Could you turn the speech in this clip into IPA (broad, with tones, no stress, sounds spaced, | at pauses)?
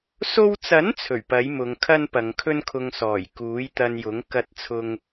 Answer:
s o˧ w t͡s ɐ˨˥ n t͡sʰ ɵ˨˩ ɥ p ɐ˨˥ j m ʊ˨˧ ŋ kʰ ɐ˥ n p ɐ˨˧ ŋ kʰ ɵ˥ n kʰ ʊ˧ ŋ s ɔː˨˩ j k uː˨˥ j t̪ ɐ˧ n j ʊ˨˥ ŋ k ɐ˧ t̚ t͡sʰ ʊ˧ ŋ